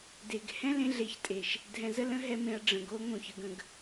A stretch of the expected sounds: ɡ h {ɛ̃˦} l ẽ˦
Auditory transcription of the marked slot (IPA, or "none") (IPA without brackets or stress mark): ɛ̃˦